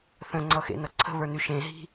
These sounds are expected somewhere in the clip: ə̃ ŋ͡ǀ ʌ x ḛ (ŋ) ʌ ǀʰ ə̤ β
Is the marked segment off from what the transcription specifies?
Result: yes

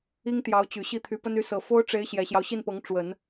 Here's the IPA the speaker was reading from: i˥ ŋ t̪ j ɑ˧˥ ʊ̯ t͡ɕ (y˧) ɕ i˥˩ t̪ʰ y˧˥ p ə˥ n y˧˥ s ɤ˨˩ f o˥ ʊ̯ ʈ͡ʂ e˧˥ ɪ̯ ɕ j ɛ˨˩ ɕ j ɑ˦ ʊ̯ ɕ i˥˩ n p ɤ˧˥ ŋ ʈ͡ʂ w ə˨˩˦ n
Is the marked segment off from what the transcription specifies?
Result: yes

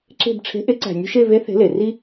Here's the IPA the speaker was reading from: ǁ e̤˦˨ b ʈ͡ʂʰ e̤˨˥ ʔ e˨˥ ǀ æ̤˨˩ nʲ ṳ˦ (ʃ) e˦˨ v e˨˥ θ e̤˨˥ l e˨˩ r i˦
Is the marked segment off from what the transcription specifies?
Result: no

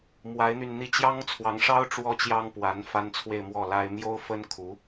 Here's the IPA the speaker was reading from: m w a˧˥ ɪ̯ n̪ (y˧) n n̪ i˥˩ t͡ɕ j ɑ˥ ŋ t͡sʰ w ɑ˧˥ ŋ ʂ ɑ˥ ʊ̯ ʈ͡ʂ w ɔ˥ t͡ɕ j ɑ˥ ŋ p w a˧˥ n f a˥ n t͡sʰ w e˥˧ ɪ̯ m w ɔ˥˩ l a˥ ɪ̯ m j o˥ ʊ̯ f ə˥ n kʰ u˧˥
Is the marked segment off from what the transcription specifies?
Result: no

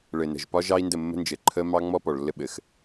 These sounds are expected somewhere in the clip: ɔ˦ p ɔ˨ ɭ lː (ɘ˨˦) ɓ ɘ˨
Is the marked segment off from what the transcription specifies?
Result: yes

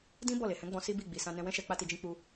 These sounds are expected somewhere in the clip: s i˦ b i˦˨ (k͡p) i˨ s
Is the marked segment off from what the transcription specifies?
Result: yes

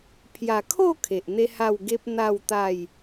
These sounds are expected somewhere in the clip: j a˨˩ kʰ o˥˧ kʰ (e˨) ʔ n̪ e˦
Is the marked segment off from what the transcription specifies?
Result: no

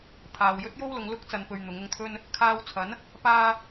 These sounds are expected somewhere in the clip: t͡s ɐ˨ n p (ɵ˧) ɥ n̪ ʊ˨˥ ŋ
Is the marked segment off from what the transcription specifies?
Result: no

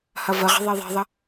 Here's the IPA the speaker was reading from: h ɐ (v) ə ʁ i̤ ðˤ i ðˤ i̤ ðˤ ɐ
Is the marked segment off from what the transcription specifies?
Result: no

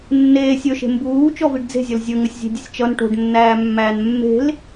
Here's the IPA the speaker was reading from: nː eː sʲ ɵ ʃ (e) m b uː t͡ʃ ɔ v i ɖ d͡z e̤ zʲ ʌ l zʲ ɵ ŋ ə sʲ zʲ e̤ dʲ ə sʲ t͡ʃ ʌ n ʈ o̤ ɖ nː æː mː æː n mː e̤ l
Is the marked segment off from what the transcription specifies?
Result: yes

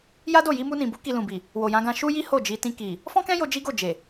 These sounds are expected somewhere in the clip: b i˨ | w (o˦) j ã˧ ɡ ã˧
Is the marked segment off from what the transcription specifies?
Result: yes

